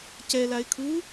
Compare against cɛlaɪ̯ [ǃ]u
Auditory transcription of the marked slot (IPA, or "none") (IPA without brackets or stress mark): kʰ